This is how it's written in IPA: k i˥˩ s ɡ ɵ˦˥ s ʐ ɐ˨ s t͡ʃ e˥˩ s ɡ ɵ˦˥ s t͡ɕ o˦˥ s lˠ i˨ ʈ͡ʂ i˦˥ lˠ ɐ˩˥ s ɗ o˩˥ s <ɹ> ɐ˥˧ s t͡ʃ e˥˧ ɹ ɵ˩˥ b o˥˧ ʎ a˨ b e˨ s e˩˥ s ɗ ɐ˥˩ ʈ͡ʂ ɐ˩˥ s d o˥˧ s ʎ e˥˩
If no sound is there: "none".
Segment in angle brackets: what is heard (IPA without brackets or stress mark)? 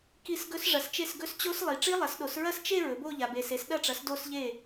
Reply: ɹ